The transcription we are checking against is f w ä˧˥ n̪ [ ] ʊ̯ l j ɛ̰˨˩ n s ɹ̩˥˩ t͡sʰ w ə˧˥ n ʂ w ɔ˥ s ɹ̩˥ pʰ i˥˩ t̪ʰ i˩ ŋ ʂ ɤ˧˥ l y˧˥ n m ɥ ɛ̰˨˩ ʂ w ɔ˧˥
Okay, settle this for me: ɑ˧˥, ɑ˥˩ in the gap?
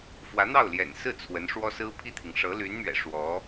ɑ˥˩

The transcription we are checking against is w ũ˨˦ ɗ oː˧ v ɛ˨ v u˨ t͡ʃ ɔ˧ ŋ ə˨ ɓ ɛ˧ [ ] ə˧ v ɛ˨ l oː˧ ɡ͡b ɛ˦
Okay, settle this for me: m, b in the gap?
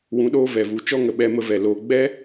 m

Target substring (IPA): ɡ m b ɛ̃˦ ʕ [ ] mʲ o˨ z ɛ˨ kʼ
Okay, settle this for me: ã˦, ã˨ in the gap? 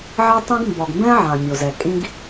ã˨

